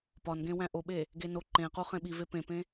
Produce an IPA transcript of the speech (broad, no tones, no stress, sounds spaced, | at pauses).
p ɒ n ɡ ẽ w æ̃ ʔ o ɓ e | ɡ e n o ǃ ẽ q u χ ẽ ɓ i v e p ẽ p ẽ